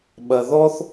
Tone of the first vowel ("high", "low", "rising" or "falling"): low